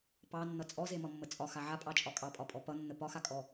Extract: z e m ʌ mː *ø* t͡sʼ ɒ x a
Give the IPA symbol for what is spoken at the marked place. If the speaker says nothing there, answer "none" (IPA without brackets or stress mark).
ə